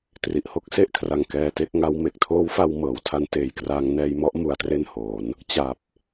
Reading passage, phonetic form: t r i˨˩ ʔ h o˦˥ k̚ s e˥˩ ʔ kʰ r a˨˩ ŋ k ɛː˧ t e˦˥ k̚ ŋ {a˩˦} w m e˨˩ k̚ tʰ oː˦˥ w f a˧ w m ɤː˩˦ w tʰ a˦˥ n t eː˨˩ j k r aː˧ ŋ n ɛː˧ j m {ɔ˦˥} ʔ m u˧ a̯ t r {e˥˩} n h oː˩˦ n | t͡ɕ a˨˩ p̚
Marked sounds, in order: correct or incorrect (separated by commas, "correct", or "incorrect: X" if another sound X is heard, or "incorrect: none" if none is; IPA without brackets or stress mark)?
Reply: incorrect: a˦˥, correct, correct